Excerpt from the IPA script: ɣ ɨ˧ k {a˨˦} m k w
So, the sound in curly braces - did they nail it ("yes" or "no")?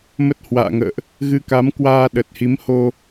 yes